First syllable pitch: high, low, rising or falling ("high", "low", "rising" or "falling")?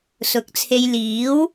rising